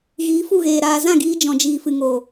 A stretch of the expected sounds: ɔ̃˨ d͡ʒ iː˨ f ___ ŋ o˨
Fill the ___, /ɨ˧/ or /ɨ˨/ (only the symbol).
ɨ˨